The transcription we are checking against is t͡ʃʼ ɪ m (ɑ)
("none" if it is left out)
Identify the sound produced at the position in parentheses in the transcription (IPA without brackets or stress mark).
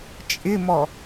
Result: ɔ